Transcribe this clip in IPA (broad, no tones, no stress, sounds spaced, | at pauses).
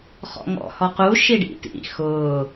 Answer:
χ ɔ̰ ŋ ɔ̰ h ɔ q u ʃ i ɖ ḭ t ḭ x ʊː